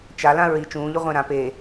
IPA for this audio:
t͡ʃalã ɹi t͡ʃũːʎu ʁʷẽɾã pe

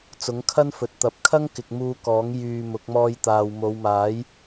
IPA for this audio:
t͡sʊ˨˥ŋkʰɐ˥nfɵ˨t̚t̪ɐ˨˥p̚ kʰɐ˥ŋkɪ˨k̚ muː˧kɔː˨˥ŋ jyː˧mʊ˨˥k̚ mɔː˧jt̪aː˨w mo˨˧wmaː˨˥j

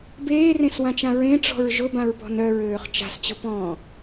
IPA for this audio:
beːrẽswãt͡ʃã ɹẽʈ͡ʂɔ̤ɹ ʒʊbãɹpɔ̤n œɹøːχ t͡ʃa̤st͡ɕʊpɔ̃ː

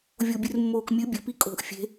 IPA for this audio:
vʲobʲɨrmːoːkmʲɨ bʲɵpi kʼo̤ʔ fʲe̤

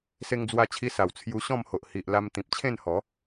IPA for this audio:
se˧ŋd͡zwa˧t͡ɕʰi˧sa˨˩w t͡sʰju˧ɕɔ̃˥˧mho˨ʔ hi˨ʔ la˧mt̪ĩ˨p̚t͡ɕʰẽ˥˧nhɔ˨˦

